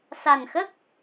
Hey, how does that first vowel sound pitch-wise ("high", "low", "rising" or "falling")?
low